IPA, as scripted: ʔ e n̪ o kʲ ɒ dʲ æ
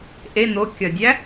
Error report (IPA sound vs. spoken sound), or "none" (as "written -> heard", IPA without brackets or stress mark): none